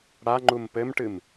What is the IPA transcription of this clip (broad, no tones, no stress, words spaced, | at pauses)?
ɽaŋ͡ǃum pɘmʈɨm